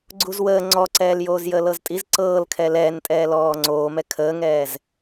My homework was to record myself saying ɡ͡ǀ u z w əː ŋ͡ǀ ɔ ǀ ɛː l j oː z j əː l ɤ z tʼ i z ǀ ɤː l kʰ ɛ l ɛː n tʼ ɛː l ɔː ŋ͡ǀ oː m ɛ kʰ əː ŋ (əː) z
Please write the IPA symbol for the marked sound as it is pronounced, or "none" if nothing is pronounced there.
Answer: ɛː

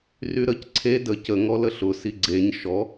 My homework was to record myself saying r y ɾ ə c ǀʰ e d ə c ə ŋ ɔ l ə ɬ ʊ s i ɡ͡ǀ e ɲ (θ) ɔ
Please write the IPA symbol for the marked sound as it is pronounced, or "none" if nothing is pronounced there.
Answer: ʃ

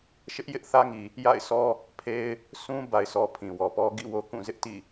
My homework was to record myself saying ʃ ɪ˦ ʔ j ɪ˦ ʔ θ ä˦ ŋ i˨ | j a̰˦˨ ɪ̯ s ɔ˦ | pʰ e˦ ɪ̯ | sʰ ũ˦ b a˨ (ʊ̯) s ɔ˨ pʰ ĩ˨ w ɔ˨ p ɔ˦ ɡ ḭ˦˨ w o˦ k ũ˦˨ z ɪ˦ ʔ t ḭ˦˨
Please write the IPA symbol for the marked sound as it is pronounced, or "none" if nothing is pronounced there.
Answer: ɪ̯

